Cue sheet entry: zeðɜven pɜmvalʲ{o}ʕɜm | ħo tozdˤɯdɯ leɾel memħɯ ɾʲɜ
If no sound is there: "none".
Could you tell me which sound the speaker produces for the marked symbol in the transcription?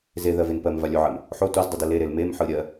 o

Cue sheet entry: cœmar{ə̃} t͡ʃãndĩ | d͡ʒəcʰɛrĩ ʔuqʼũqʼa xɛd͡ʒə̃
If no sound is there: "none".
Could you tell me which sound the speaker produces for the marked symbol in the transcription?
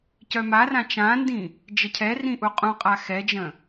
ã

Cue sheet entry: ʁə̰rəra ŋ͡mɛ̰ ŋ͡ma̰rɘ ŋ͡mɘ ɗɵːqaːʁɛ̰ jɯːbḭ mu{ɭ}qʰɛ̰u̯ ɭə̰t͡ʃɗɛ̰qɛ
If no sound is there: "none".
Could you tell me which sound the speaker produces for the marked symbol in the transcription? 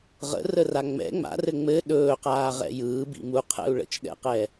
none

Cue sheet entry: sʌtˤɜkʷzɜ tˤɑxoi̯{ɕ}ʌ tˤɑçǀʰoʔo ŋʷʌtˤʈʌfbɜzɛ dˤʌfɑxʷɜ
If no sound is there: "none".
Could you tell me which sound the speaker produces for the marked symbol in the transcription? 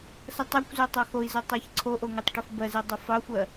z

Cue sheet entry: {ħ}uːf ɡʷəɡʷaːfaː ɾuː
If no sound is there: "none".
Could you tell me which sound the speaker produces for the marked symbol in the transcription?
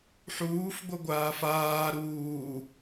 ħ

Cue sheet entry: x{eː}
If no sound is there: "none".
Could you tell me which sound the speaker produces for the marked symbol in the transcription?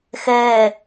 ɘː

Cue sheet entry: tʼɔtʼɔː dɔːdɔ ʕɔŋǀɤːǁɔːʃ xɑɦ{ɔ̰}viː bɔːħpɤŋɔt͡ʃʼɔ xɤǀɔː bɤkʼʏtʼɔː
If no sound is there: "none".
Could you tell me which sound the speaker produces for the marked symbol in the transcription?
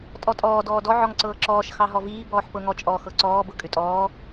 ɔ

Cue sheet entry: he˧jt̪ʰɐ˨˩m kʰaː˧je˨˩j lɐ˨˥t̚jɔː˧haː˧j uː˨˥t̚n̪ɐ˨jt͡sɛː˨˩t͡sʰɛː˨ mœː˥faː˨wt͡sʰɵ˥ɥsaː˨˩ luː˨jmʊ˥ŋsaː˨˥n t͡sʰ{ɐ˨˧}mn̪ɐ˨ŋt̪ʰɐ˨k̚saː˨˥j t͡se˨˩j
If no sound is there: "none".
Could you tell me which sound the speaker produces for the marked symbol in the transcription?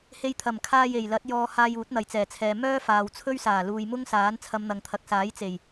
ɐ˨˧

